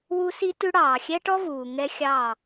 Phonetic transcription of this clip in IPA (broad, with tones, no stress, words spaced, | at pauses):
wu˦si˦tʉ˦ ɽɑː˨xʲɛ˦ʈɔ˦vuː˨ ŋɛ˦ xʲɑː˦˨